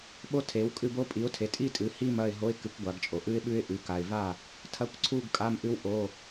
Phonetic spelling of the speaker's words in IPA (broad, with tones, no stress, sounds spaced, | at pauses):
ɓ o˥ tʰ e˨˥ w kʼ ɨ˥˨ b o˥ pʼ i˨˥ ʊ̯ tʰ e˨˥ tʼ i˥ tʼ ɨ˨˥ h i˥˨ m ɐ˥˨ ɪ̯ ɦ o˧˥˧ ɪ̯ k ɨ˨˥ kʷ ɡʷ a˨˥ ɡ t͡ʃʼ o˨ ʔ ɨ˥ ɪ̯ ɓ ʉ˥ ɪ̯ ʔ ʉ˨˥ k a˨ ɪ̯ v a˥˨ | tʰ ɐ˧˥˧ kʷ ǀʰ u˥˨ ɡ kʼ a˧˥˧ m ʔ ɨ˥ w ʔ o˧˥˧